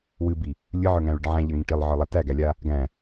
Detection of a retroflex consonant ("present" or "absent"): present